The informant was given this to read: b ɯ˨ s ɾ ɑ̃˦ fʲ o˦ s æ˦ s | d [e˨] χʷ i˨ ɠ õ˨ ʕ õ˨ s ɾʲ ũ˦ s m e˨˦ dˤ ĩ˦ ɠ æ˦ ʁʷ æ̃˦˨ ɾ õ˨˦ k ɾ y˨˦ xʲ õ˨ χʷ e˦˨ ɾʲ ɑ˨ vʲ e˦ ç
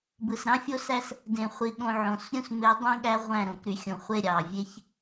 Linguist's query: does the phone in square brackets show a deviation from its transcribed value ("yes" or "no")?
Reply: yes